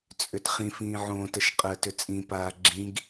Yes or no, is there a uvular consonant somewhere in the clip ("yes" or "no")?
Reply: yes